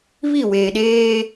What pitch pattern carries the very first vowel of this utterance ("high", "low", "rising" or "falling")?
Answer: falling